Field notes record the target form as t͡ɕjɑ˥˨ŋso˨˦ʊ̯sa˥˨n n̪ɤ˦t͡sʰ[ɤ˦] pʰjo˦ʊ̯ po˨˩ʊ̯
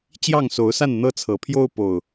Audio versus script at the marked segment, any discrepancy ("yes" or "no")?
yes